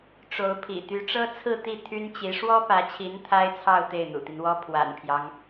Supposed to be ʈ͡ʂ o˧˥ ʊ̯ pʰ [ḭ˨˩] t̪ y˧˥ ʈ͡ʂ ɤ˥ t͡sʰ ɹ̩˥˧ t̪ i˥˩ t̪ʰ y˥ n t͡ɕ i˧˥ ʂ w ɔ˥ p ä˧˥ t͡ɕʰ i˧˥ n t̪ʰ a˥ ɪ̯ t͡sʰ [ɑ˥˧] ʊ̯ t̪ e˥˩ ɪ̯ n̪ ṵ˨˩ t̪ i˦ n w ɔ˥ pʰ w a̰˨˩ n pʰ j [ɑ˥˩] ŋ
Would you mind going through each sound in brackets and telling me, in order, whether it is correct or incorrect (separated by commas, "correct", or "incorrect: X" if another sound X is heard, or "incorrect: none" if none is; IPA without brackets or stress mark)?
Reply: correct, correct, incorrect: ɑ˦